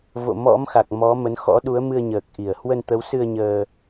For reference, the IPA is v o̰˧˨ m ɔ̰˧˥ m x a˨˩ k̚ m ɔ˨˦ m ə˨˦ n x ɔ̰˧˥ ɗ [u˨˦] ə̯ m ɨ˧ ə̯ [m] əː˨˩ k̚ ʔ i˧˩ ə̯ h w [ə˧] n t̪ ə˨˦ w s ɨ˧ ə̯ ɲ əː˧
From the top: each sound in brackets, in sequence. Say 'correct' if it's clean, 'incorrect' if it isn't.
correct, incorrect, correct

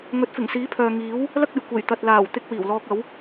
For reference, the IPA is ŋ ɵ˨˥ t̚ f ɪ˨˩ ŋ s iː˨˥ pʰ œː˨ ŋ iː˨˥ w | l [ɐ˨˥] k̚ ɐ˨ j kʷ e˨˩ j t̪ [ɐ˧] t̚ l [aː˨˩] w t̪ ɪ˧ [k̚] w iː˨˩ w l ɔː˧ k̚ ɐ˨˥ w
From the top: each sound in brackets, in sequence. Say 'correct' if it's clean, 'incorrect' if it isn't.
incorrect, incorrect, correct, correct

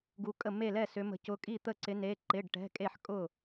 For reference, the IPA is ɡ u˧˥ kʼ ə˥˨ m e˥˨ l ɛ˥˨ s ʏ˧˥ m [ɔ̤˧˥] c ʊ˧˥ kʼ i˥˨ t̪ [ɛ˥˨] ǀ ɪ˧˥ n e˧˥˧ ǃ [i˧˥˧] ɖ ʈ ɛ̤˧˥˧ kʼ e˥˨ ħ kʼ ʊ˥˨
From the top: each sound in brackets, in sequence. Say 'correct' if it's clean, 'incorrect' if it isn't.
incorrect, incorrect, incorrect

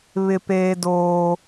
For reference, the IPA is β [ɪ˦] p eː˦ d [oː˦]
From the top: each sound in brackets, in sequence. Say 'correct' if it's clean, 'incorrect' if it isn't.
correct, correct

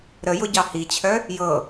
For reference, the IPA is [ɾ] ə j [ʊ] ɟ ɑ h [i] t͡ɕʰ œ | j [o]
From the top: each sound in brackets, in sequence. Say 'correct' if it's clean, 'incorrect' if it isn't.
correct, correct, correct, incorrect

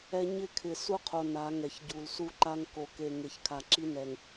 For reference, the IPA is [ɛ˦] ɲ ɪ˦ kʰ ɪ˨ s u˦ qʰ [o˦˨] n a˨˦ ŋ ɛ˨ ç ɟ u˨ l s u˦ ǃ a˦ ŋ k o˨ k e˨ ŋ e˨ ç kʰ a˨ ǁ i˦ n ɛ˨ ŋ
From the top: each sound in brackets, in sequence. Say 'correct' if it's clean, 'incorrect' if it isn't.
correct, incorrect

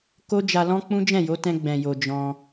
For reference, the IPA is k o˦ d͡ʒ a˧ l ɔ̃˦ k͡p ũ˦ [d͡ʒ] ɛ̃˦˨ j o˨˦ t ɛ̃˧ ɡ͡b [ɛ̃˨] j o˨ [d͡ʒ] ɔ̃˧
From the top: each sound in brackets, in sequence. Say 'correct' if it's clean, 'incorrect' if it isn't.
correct, correct, correct

